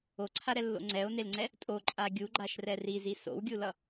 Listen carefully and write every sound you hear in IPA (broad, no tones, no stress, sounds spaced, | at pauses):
o ǀʰ a ɾ ɛ lː o̰ ŋ͡ǀ ɛ o̯ n e l ŋ͡ǀ ɛ | tʼ o ǃʼ a ɡʲ u ɡ͡ǃ a ʃ r ɛ r i z i s o̰ w ɡʲ u l ʌ